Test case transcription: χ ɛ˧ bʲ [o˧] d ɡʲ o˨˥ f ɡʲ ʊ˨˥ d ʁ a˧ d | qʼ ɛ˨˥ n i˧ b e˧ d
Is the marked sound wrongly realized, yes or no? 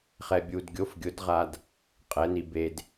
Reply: yes